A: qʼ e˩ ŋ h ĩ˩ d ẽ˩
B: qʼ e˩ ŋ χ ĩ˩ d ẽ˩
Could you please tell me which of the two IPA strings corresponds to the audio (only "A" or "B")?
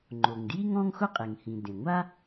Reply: A